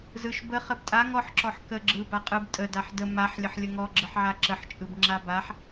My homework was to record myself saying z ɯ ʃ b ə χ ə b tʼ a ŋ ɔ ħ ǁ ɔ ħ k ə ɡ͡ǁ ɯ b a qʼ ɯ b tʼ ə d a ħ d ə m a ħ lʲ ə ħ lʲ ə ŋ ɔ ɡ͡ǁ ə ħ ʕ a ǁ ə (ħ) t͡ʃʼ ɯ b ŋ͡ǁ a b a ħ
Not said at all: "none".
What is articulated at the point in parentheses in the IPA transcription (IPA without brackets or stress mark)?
ħ